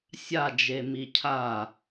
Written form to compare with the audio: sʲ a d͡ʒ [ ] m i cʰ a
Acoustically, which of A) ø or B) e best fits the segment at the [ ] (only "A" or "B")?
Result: B